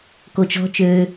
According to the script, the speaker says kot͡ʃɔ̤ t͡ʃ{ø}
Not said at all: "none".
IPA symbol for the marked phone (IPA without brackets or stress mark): ø